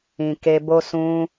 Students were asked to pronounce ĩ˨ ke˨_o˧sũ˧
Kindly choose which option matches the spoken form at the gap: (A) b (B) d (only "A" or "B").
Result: A